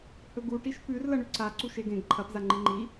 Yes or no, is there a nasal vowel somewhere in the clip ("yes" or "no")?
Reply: yes